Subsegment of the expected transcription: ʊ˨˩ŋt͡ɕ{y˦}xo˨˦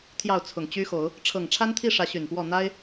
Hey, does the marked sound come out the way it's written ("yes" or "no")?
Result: yes